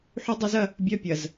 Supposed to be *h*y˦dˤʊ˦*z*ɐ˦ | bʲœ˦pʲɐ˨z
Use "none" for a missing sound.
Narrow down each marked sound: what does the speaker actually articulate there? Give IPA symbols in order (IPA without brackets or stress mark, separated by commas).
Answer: ħ, z